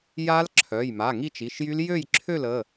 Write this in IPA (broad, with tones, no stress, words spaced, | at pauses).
ja˦˥l ǁʰœ˩˧˩jma˩˧˩ ŋi˥˨t͡ʃi˩˧˩ʃjy˦˥l jø˥˨jǁʰø˥˨l ə˩˧˩